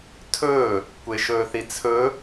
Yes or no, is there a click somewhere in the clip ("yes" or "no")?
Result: no